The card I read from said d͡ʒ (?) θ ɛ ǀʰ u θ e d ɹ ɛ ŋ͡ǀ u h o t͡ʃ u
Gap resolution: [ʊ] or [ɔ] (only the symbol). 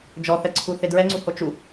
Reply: ɔ